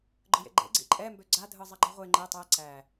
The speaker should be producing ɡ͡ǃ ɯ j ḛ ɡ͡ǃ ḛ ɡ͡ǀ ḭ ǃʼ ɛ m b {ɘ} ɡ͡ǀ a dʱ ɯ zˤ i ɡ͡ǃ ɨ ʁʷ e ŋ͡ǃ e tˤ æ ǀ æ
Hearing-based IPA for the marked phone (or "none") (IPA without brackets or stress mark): ø